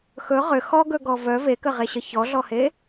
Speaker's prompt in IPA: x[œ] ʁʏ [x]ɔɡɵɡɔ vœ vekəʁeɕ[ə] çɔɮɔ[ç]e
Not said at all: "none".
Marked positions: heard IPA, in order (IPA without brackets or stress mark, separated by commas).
ɵ, x, ə, h